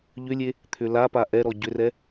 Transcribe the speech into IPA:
ʎʏlʲe | t̪ʰʏlapa ʔɛɾɔ ɟʏrɛ

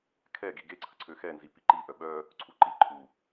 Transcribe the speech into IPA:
kʰɛ ɡiɡeǀʰə ǀʰøxɛnzi piǃiʔœ ɓœ | ǀʰuǃi ǃʰu

